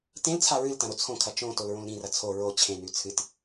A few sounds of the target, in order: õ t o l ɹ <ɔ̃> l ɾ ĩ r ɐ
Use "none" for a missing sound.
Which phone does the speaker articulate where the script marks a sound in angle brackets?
õ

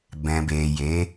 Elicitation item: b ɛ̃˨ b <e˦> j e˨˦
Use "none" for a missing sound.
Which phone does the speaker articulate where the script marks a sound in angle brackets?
e˨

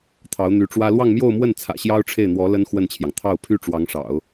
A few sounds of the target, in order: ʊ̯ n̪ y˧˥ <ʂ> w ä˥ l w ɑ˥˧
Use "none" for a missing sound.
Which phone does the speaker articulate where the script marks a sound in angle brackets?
ʈ͡ʂ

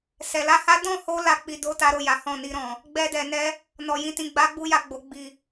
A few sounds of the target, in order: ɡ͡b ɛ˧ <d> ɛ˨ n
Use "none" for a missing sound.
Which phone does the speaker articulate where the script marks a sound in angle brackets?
d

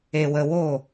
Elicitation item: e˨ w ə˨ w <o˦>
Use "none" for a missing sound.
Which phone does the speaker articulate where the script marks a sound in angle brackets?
o˦˨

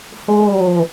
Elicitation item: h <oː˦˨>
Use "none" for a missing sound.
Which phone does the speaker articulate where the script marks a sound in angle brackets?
oː˦˨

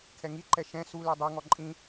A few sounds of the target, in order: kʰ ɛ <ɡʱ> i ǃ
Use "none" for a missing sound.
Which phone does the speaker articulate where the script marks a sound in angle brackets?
ŋ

